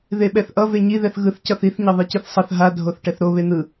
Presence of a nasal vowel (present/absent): absent